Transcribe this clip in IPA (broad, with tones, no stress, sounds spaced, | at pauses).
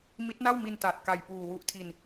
m i˦˥ t̚ n a˥˩ w m i˧ n t a˨˩ t̚ k a˨˩ j p uː˨˩ w u˦˥ ʔ tʰ i˧ n